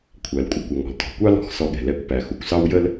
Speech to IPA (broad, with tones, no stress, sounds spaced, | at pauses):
kʷʰ æ˩ l kʷʼ ə˩ kʷ ʌ˩ ŋ ɔ̤˩ l t ɔ̤˩ kʷ ɑ˥ l ɔ̤˧ x s ɔ˧ ɠ ɛ̤˩ l ɛ˧ kʷ p æ˩ x u˩ kʷ s ɑ˥ w j ə˥ l